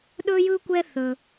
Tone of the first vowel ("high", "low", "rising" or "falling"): high